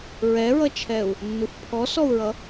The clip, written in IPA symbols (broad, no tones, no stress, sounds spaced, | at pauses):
ɹ ɛ ɹ ʌ t͡ʃʰ ɛ u̯ | nː u f pʰ ɔ s ɔ u̯ ɹ ʌ